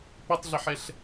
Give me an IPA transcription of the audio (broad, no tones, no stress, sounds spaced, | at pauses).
p ə tˤ ɮ ɪ ħ ɛ ɬ